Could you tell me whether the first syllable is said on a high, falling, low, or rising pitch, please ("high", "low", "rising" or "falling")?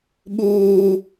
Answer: high